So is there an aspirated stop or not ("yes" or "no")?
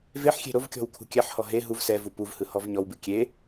yes